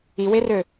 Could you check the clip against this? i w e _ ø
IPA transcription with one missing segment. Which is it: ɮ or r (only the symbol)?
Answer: r